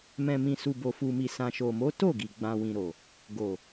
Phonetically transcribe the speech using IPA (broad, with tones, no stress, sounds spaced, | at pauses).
m ɛ̃˨ m ĩ˨ s u˨ b o˨ f u˨ m i˨ s ã˨ ʃ o˨ m o˨˦ t o˦˨ ɡ i˨ ɡ͡b ã˨ w ĩ˨ ɾ o˨ | ɡ o˨